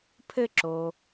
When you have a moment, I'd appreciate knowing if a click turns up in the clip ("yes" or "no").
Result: yes